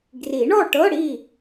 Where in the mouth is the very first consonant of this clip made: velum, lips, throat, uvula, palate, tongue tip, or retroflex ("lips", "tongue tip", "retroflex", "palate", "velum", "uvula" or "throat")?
velum